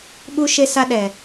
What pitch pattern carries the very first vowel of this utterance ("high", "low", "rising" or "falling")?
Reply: high